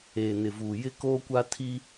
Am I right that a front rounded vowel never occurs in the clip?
yes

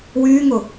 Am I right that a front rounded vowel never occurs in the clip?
no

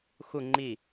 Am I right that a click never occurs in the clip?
no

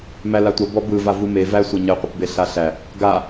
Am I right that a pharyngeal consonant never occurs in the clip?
yes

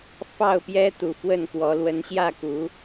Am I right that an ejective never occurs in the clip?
yes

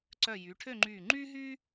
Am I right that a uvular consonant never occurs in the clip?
yes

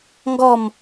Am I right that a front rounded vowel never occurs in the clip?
yes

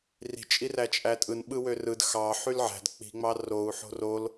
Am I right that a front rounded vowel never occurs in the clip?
no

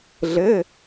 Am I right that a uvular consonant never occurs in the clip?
yes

